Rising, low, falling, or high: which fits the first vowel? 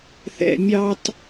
low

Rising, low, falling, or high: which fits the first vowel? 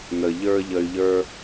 low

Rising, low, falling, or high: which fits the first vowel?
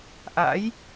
rising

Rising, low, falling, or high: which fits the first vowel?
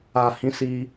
low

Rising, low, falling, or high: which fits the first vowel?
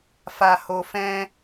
high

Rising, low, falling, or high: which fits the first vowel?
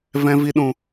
high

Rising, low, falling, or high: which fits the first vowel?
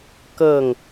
falling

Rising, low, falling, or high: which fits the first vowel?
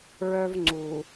high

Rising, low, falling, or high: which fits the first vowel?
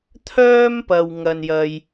high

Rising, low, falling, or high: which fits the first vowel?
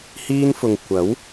high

